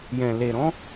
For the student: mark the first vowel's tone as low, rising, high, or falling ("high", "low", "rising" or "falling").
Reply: low